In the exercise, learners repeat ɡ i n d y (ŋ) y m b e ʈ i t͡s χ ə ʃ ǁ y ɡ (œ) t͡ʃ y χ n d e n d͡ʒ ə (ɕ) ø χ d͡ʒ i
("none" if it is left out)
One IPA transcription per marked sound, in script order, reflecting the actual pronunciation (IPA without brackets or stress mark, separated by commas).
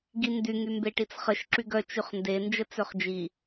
ŋ, œ, t͡s